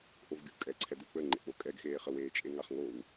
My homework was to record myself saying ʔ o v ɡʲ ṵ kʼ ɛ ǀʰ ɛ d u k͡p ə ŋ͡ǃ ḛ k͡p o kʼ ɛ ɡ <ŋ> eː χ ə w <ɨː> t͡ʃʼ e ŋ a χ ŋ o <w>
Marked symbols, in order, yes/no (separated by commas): no, no, yes